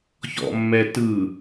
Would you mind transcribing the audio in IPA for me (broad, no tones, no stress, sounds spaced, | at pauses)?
ç ɔ̰ mː ɛ t ɯ